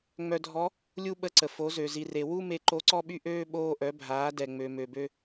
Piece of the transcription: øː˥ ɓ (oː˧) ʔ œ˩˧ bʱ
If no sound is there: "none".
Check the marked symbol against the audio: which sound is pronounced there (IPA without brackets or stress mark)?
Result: oː˧